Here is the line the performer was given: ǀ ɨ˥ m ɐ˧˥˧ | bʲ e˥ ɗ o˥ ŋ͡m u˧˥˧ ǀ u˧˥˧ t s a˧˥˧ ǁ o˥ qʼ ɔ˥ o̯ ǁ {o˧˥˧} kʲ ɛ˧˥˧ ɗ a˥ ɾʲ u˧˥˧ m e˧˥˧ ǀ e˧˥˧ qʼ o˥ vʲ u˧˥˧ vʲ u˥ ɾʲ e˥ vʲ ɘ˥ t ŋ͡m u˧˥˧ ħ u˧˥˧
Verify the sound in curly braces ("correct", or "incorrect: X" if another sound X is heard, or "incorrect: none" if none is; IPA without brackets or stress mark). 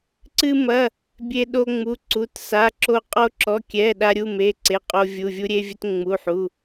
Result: incorrect: ɔ˧˥˧